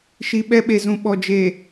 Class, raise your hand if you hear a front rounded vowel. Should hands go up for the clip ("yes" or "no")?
no